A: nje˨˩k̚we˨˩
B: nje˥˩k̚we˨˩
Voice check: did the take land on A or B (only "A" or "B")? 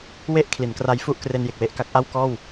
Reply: A